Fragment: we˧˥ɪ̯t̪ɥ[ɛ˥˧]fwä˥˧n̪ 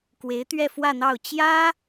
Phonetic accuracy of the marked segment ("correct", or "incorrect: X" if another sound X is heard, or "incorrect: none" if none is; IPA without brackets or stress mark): correct